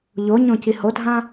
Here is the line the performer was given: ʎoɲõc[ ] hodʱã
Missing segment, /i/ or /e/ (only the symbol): i